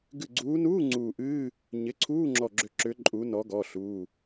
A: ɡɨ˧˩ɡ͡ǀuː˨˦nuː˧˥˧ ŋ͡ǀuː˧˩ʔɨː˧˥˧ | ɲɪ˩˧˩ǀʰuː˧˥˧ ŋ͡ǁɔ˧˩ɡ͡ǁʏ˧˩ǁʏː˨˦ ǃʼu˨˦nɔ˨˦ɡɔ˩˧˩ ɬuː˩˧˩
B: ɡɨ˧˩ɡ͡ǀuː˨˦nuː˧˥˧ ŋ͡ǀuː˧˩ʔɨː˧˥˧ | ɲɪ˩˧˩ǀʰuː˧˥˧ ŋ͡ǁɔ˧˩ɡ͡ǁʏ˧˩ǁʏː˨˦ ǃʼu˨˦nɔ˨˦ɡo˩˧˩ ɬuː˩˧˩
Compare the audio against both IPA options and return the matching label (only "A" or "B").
A